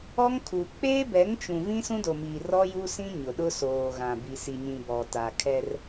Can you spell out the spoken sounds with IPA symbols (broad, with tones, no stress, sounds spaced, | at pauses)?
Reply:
ɔ˦ ŋ kʰ u˨ k͡p eː˦ b ɛ˨˦ ŋ t͡ʃ ũ˨ v ĩ˦ s ũ˦ d o˨ m iː˨ r ɔ˦ j u˦ s ĩ˦ ɲ ʊ˨ ɗ ʊ˦ s oː˨ ɣ ã˨ b i˨ s i˨ ɲ ĩ˨ b ɔ˨ t a˨ kʰ ɛ˦ r